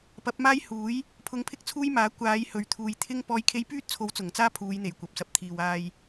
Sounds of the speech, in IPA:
p ɐ˨˥ p̚ m aː˥ j h uː˨˥ j | pʰ ʊ˧ ŋ pʰ ɪ˥ k̚ t͡sʰ uː˥ j m aː˨˥ kʷ aː˨˧ j h ɵ˨ ɥ t̪ʰ uː˨ j t̪ʰ ɪ˥ ŋ p ɔː˨˧ j kʰ e˧ j p yː˥ t̚ t͡sʰ o˨˥ w t͡s ʊ˨˩ ŋ t͡s aː˥ pʰ uː˨˧ j n̪ e˨˩ j kʷ ɐ˨ p̚ s ɐ˨ p̚ t̪ʰ iː˨ w aː˧ j

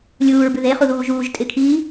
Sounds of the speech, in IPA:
lʲ uː ɹ b ʉ ð e χ u ð uː ʒ uː ʒ tʼ ɪ kʰ iː

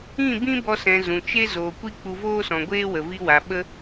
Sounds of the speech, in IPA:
ĩ˦˨ b ĩ˦ b ɔ˧ s ɛ̃˨ z ũ˨ t͡ʃ e˦ z oː˨ kʷ i˦ k͡p u˧ v oː˦ s ɔ̃˨ ɡʷ eː˦ w ə˨ v i˧ w a˨ ɓ ə˦

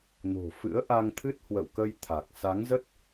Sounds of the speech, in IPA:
n o̤˨˩ f ɨ̰˧˥ ə̯ ʔ a˧ ŋ t̪ʰ ɨ˦˥ t̚ h w ə̰˧˨ w k ə˧ j t̪ʰ a˨˩ k̚ s a˨˦ ŋ z ə˦˥ t̚

